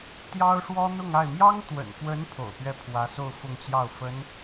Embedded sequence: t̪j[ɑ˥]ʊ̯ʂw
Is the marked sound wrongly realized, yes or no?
no